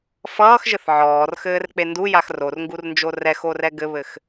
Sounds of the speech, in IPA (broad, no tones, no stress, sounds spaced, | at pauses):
f ʌː x ʒ ɘ θ ʕ ɔː r x ɘː r k͡p e n d u j a x r o r ŋ ɡ u r n d͡ʒ o r ɛ x o r ɛ ɡ ɘ β ɘ x